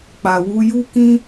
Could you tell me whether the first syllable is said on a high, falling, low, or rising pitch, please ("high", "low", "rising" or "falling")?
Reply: low